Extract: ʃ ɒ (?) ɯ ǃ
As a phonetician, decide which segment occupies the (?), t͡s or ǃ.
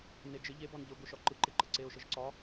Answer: ǃ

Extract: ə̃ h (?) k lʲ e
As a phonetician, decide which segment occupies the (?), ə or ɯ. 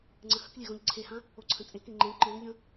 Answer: ə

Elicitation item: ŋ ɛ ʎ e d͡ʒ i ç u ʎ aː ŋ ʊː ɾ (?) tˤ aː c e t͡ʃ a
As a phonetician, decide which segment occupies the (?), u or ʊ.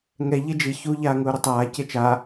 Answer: ʊ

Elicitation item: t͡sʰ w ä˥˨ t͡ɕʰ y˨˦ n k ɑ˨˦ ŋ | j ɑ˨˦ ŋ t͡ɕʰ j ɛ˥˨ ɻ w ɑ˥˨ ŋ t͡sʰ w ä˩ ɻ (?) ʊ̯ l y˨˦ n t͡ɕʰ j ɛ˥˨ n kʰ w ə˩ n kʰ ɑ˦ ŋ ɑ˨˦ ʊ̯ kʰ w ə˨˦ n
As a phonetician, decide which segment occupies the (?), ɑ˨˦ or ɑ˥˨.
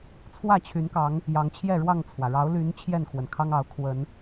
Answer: ɑ˨˦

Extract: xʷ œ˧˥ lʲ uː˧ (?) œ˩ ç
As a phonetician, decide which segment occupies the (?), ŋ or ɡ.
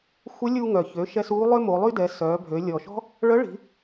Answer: ŋ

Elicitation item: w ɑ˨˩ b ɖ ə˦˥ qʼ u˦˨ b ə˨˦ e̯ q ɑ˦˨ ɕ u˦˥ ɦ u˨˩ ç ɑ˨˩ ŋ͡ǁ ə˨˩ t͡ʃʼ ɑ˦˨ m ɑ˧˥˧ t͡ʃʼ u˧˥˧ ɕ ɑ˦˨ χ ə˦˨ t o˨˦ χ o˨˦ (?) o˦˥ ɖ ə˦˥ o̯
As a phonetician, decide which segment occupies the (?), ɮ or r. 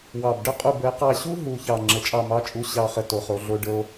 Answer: ɮ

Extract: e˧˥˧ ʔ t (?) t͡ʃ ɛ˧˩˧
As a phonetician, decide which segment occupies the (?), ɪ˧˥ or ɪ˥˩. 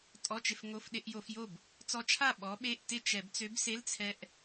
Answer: ɪ˥˩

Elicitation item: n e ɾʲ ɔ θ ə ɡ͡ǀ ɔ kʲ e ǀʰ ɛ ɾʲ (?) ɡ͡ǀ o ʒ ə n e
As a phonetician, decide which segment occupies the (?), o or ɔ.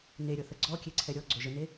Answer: ɔ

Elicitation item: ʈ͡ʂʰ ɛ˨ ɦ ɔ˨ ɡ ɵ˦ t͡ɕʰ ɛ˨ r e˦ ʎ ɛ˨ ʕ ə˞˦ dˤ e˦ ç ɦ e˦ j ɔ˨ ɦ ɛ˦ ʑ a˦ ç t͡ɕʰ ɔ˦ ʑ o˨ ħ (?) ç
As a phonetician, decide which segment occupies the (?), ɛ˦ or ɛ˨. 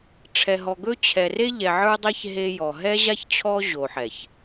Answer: ɛ˨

